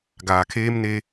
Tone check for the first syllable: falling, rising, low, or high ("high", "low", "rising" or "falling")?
low